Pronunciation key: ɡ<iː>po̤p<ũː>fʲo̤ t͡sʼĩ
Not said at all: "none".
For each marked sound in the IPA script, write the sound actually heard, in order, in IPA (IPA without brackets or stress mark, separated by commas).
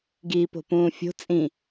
iː, ũː